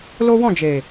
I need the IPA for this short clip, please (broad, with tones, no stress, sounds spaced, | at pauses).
l o˦ w ɔ̃˦˨ d͡ʒ e˨